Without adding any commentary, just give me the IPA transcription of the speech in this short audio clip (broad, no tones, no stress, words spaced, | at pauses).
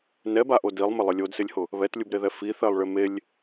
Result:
nɛbaʔo dilˠmɪ lˠɪlʲodsɪlʲhʊ | βɛtlʲubɾeðɛ fi θɛlˠɭɪmelʲ